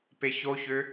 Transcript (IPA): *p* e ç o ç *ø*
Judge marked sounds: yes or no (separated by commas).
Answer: yes, yes